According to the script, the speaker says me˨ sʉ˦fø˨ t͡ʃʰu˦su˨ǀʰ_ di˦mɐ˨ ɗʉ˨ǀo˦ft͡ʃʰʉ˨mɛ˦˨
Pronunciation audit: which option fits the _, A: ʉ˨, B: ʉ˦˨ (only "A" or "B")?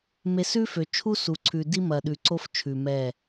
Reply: A